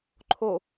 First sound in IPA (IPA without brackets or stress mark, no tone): ǃʰ